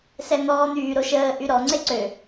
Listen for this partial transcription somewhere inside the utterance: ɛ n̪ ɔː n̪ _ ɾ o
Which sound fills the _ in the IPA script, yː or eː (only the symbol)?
yː